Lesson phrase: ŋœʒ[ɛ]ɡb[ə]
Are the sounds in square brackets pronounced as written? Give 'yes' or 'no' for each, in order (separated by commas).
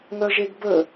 no, yes